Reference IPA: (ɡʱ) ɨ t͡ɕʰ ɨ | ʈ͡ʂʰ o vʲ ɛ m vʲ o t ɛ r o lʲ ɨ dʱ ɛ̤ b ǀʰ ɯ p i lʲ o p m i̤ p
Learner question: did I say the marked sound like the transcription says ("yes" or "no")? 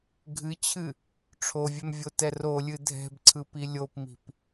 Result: yes